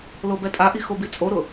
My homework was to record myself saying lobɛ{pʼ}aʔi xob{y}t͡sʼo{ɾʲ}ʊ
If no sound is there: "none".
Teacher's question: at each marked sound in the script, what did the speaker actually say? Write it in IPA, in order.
tʼ, i, ɾ

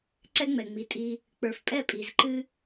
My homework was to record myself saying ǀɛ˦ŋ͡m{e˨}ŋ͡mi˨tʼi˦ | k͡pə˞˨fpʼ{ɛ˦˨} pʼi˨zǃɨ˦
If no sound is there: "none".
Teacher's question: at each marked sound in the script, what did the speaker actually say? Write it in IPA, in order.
ɛ˨, ɛ˦˨

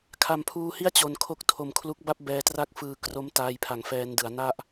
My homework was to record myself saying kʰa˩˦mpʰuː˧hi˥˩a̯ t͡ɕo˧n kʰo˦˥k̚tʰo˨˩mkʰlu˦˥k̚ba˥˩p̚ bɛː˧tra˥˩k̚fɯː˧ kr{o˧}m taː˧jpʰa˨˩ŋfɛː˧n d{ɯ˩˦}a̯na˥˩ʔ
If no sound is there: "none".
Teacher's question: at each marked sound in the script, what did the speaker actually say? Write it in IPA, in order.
o˦˥, ɯ˩˦

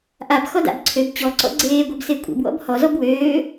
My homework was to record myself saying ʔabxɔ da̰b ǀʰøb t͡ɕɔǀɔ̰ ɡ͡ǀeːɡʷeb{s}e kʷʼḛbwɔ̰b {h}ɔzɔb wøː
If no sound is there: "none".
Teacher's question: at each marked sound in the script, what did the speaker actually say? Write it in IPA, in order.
s, h

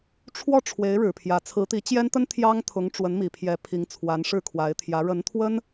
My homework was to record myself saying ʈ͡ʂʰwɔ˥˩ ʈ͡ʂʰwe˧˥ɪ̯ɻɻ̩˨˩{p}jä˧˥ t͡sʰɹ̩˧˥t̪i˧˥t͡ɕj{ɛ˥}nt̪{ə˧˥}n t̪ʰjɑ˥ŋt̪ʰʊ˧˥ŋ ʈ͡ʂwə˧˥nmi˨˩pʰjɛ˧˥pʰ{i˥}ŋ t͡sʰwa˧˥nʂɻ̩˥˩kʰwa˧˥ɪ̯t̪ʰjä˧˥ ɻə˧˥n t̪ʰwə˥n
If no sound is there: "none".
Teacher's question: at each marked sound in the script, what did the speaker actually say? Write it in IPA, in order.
pʰ, ɛ˥, ə˥, i˧˥

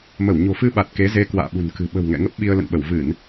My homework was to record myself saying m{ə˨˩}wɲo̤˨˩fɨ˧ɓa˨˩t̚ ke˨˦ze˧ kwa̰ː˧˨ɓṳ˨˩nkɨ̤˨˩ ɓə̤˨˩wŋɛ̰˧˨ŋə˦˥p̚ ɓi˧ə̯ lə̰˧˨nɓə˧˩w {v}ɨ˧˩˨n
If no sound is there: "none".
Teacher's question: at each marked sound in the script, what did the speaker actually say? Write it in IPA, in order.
ə˧˩, v

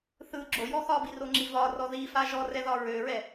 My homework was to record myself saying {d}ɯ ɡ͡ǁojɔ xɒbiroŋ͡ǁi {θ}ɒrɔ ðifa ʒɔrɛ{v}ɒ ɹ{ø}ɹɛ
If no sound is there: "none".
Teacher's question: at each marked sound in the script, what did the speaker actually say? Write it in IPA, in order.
θ, v, ð, ø

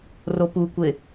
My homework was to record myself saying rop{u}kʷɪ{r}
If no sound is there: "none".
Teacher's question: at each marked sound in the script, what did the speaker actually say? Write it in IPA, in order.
u, none

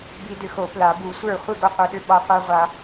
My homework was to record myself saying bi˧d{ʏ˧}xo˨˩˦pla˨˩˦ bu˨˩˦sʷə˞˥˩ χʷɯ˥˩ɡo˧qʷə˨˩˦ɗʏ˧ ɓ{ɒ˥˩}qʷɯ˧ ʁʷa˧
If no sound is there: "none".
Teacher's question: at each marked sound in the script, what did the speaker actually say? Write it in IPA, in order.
ʏ˧, ɒ˧

